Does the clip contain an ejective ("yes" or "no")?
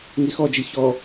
no